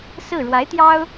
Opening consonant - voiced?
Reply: no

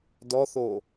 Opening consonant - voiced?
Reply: yes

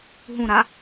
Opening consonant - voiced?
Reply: yes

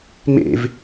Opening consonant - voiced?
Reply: yes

